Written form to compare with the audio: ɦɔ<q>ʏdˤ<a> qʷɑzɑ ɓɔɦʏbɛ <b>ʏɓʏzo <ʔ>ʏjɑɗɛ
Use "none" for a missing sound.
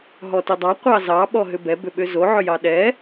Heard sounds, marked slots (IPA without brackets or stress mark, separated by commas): t, ɑ, b, ʕ